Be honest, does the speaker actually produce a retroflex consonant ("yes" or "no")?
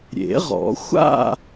no